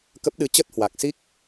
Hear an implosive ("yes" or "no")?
yes